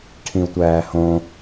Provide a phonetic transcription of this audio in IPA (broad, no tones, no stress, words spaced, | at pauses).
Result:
ʈʰĩu̯tʷæːhõ